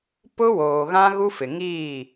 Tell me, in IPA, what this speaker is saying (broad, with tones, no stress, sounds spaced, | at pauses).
p ʊ˦ w oː˨ ɣ ã˦ ɣ u˦ f ɪ˨ ŋ iː˦˨